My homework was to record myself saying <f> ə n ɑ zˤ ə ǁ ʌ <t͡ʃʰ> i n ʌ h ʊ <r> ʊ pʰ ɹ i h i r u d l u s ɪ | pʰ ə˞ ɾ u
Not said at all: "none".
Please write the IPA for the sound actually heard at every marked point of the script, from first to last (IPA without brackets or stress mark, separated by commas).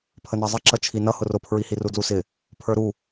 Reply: pʰ, t͡ʃʰ, r